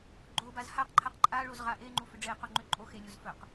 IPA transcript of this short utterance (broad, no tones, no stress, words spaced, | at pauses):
ɡ͡ǃobaz haqǃʰaq ǃʼaɭoz ʁaʔeŋ͡ǃu fʏɖ͡ʐeqo ŋ͡ǃʏ ǃʼo xelʲoz fɵq